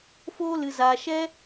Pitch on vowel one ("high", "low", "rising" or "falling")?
high